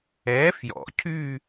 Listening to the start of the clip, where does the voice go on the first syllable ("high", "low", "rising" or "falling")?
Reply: rising